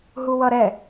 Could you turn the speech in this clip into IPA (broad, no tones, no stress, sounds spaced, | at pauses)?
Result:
ɦ u w ʌ ɾ ɛ